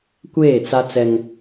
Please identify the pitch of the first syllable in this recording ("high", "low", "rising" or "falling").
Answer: falling